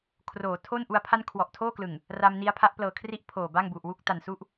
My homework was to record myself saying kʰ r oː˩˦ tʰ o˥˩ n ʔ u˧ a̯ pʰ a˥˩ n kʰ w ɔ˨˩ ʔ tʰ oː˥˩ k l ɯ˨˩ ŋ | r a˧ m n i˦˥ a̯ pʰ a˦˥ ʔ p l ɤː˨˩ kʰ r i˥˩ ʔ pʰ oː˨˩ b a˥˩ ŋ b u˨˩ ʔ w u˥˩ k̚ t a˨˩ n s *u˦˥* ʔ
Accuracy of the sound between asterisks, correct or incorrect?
incorrect